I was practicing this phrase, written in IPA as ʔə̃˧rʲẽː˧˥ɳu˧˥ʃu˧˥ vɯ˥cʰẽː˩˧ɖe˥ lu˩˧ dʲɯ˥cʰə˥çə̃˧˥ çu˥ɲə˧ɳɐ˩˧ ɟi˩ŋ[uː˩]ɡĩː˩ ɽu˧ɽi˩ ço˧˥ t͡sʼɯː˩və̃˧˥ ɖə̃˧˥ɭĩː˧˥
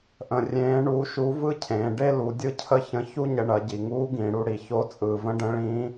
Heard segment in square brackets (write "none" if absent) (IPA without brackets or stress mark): uː˧˥